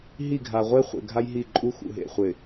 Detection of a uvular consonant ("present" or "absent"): present